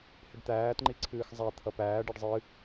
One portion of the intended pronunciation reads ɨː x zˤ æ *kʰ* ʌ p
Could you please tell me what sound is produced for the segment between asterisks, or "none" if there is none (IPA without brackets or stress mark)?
t̪ʰ